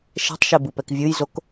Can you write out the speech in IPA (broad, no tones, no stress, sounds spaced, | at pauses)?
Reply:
ʃ ɛ̤ tˤ ʃ ɛ b ɯ p ɛ k vʲ ɯ j z o k